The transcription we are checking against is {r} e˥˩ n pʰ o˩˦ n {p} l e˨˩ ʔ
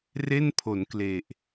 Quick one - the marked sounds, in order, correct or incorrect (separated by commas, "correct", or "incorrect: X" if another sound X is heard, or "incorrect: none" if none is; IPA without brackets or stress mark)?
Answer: correct, incorrect: k